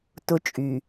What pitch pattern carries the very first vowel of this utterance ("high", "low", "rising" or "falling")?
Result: high